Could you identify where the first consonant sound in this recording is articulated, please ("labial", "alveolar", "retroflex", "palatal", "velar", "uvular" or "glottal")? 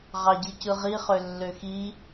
uvular